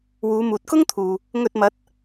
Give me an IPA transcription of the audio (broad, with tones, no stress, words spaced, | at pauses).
wuː˨˧muː˨t̚kʊ˥ŋ t̪ʰuː˨ | ŋɵ˧t̚mɐ˨˥t̚